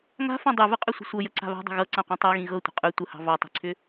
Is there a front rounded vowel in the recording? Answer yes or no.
yes